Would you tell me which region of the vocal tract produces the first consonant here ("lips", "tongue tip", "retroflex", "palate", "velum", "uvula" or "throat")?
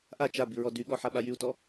throat